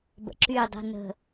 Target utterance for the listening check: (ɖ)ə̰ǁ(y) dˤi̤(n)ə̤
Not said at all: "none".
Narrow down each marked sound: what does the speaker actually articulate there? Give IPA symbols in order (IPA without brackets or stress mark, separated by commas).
b, y, n